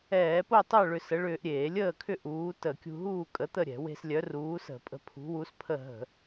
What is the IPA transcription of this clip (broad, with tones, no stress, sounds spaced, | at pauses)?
ɛː˧˩˧ p o˥˨ tˤ œ˥˨ ɭ ʏ˧ s ə˨˥ ɭ ʏː˧ ʔ ɾʲ eː˧˩˧ lʲ əː˥˨ kʰ ʏ˥˨ ʔ uː˨˥ t ə˧˩˧ kʲ ṳ˧ ɦ uː˥˨ kʼ ə˨˥ t̪ ə˥˨ ɾʲ ɛ̤˧˩˧ w e̤˧ s lʲ œ˨˥ r uː˨˥ s ə̤˧˩˧ pʼ ə̤˧ pʰ ṳ˨˥ w u˨˥ s pʰ ə˥˨ ɦ ə̤˧˩˧